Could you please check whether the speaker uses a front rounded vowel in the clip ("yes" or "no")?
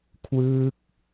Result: no